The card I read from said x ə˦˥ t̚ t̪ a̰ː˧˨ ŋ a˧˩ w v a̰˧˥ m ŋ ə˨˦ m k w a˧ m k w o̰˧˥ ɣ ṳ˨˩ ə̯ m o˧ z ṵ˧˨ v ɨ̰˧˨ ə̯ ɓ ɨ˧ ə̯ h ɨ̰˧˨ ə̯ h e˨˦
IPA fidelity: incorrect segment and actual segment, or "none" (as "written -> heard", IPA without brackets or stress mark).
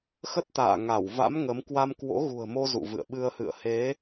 none